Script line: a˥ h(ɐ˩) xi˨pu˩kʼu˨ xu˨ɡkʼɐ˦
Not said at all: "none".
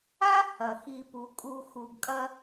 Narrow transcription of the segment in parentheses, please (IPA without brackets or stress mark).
ɐ˩